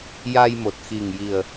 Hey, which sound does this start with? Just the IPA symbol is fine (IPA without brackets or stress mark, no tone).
j